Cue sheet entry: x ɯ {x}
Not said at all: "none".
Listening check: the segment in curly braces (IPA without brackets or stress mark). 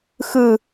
none